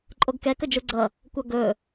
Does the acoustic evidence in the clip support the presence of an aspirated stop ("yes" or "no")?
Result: no